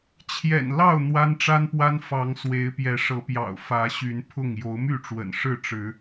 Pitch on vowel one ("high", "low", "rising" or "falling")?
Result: low